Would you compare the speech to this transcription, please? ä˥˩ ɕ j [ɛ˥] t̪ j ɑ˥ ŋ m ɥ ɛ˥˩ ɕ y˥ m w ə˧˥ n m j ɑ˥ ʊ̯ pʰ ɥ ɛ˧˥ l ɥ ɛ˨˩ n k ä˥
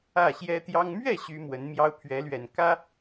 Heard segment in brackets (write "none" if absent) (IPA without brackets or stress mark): ɛ˥